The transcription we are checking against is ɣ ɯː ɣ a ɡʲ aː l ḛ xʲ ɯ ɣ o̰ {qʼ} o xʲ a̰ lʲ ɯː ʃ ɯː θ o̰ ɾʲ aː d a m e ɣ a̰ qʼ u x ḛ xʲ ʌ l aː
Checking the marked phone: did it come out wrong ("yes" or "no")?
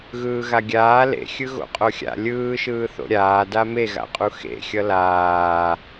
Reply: no